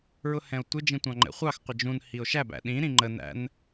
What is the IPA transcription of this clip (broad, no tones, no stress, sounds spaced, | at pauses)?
ɹ ʊ h ɛ̃ o̯ tʷ ɪ d͡ʒ ĩ tʷ ɑ̃ ŋ͡ǃ ɛ̰ χʷ ɑ x qʷ ɪ d͡ʒ ũ n h i o̯ ʃ æ b æ̰ ɗ ĩ ɾ ĩ ŋ͡ǃ ə n æ̰ n